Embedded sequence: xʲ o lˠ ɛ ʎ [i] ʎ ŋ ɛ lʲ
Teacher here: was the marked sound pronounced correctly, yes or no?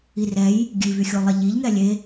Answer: yes